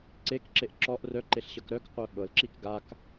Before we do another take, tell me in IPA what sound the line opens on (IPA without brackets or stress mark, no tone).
ǀ